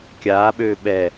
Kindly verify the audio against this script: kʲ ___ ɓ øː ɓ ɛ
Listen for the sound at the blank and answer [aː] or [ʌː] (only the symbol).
aː